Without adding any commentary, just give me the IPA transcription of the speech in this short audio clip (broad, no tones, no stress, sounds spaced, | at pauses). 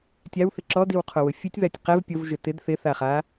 tʲ a w θ ɪ ǁ ɔ d i w qʰ o w ʊ fʲ u tʲ ð a tʲ q ɛ v pʲ o v ʒ ɪ t ɪ d θ ɪ θ a χ a